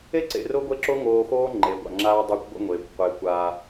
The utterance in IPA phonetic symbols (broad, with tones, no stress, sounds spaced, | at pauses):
e˦ ǀ ḛ˨ r o˦ ɡʷ e˦ ǁ o˦ ŋ oː˨ x oː˦ ŋ͡ǃ e˨ ɡʷ a̰˨ ŋ͡ǁ aː˦ dˤ a˦ kʷ ɡʷ ə̰˦ ŋʷ eː˨ kʷ qʷ eː˨ kʷ aː˦